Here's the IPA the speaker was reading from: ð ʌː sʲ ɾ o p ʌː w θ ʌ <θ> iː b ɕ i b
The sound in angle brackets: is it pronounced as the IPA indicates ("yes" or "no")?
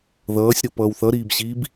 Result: no